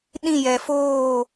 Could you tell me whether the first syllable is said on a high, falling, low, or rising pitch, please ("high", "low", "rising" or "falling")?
falling